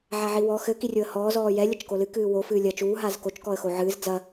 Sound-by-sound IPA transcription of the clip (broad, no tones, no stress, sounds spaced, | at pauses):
ʕ a ʕ i w ɔ x ɘ k i rʲ o ə̯ h ɔː z ɔː j ɛ lʲ ɐ t͡ʃ k o l ɨ k ɨː w o f ɨː lʲ ɐ t͡ʃ uː ɦ aː z k o t͡ʃ k ɔ ə̯ x o ʕ ɨː z d͡z ɐ